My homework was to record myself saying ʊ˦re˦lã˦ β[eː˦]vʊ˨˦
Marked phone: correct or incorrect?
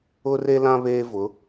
correct